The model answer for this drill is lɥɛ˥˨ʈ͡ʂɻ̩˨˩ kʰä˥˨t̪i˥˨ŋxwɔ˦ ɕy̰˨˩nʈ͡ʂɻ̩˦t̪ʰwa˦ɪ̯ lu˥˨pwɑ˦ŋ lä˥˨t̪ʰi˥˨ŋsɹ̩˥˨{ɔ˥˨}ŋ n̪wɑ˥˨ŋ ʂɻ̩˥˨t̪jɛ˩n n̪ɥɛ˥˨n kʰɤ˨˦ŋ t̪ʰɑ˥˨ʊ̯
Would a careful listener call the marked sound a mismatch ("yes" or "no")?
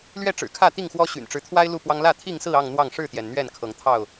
yes